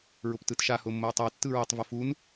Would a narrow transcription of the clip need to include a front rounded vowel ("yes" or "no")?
no